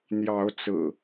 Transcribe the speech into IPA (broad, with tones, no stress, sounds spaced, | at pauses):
n̪ j ɑ˨˦ ʊ̯ t͡s ɹ̩˨˩